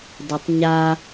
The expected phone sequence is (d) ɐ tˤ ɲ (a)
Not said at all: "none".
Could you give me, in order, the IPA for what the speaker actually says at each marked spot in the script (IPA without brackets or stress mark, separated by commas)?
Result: d, a